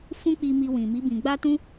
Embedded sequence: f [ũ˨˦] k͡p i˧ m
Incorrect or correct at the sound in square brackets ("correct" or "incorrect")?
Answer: incorrect